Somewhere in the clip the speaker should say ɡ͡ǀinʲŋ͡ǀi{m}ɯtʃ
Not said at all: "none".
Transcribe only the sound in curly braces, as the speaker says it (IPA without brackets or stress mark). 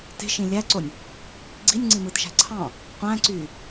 m